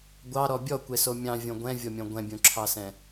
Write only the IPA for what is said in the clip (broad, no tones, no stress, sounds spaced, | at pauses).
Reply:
ɡʷ ɑ ɾ ɔ bʲ ɔ kʷ e s o mʲ ɑ̃ vʲ ɔ̃ ɡʷ ɛ̃ vʲ ɔ mʲ ɔ̃ ɡʷ ɛ̃ bʲ õ ǁʰ ɑ s ɛ̃